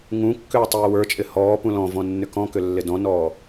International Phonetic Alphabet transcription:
ŋũ kːʏːtˤɪːwə˞t͡ʃʼɪ hɔːpũ lɔ̃vɔ̃ nːʏkɔ̃kʏ lːɪdɔ̃nɔː

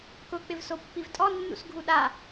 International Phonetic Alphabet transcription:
kʊ k͡pɪvsopːivtʼɔ nːṵsɡʱuɗa

